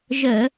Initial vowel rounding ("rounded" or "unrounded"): unrounded